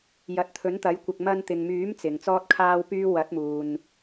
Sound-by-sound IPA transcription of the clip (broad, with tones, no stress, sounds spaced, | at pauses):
j ɐ˨˥ t̚ t̪ʰ ɵ˨˥ n t̪ ɐ˨˥ j kʷ ɪ˨ k̚ m ɐ˧ n t̪ ɪ˨ ŋ m yː˨˥ m t͡s ɪ˨ ŋ t͡s ɔː˥ t̚ kʰ aː˥ w p yː˥ w ɐ˨˥ t̚ m uː˨ n